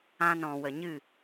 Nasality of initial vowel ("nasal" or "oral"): nasal